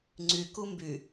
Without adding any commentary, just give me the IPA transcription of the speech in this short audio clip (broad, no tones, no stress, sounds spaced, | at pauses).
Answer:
ŋ͡ǀ y k u m b y